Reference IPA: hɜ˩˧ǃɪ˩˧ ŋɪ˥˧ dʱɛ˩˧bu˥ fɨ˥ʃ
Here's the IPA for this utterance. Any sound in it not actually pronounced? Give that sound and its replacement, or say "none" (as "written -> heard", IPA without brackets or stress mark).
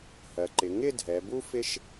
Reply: ɨ˥ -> ɪ˥